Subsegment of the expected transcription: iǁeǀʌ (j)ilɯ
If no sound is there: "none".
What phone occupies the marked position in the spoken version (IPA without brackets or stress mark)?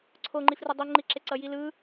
j